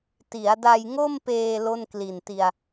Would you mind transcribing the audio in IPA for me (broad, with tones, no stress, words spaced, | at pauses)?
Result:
ti˩˦a̯da˧jŋo˥˩mpeː˧ lo˥˩nkli˨˩nti˧a̯